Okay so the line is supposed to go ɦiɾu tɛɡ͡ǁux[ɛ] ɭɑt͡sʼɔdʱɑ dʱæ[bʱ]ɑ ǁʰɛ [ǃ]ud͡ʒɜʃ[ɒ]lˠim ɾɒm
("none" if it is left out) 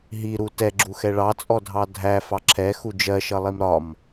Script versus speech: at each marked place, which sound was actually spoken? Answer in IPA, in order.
ɛ, f, x, ʌ

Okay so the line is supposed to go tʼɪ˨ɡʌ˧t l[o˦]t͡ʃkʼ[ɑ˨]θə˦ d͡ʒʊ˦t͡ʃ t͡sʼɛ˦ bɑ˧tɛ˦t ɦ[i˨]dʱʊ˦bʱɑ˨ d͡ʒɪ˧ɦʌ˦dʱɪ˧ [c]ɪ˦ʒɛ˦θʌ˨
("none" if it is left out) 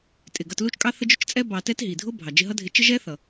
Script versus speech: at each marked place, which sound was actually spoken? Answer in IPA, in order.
u˦, ɑ˦, i˨, t͡ʃ

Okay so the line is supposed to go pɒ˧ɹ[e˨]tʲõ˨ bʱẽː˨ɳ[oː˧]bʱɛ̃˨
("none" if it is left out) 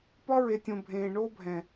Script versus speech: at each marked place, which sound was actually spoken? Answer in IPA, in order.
e˨, oː˧

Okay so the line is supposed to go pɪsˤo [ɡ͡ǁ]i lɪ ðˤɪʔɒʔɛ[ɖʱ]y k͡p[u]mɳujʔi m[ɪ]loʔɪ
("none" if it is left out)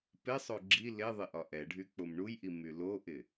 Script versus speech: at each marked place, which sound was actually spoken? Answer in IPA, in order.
ɡ͡ǁ, ɖʱ, o, y

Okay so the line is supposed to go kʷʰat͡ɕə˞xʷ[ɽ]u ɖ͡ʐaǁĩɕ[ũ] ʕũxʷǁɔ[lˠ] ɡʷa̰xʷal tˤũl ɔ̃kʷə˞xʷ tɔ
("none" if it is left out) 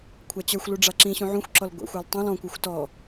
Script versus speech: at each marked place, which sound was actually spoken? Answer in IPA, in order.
l, ũ, l

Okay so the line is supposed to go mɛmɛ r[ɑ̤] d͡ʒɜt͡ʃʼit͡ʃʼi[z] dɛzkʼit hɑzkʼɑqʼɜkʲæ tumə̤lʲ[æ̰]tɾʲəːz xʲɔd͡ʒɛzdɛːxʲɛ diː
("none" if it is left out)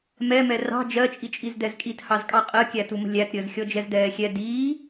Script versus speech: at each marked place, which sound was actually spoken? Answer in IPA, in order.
ɑ̤, z, æ

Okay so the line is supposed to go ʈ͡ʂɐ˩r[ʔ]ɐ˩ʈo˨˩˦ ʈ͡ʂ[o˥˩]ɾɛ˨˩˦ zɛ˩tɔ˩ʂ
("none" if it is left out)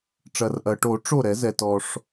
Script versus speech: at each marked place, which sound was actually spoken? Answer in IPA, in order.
ʔ, o˥˩

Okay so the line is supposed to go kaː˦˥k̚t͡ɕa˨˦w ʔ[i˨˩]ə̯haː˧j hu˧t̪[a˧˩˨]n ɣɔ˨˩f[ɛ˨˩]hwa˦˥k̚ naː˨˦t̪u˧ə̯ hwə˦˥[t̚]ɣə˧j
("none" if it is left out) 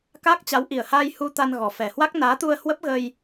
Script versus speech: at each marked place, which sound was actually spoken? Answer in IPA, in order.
i˨˩, a˧, ɛ˨˩, p̚

